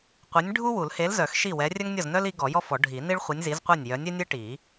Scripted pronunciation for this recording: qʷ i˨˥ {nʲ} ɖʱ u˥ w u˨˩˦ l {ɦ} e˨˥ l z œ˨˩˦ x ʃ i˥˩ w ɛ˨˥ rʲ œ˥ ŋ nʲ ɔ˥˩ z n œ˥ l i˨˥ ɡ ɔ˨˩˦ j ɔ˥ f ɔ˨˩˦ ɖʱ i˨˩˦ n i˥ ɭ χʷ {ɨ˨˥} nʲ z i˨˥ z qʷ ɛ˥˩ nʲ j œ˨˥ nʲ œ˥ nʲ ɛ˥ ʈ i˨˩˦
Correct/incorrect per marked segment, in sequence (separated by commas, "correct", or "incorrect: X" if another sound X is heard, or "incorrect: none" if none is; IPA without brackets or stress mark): correct, incorrect: h, incorrect: i˨˥